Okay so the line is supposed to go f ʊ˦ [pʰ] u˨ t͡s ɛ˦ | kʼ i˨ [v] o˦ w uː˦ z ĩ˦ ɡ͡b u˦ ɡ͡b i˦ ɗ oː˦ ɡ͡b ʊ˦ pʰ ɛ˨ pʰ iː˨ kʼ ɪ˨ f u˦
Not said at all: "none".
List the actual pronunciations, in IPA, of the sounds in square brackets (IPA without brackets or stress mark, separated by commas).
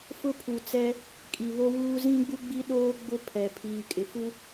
pʰ, β